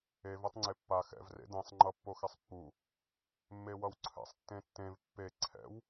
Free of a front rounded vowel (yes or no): yes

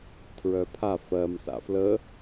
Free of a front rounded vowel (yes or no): no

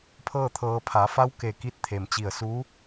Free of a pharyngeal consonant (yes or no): yes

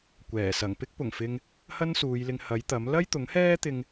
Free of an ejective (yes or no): yes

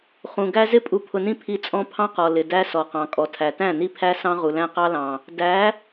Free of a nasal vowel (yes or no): no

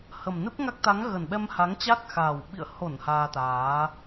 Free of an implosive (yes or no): no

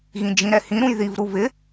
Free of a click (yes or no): yes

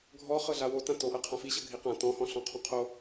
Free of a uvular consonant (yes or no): no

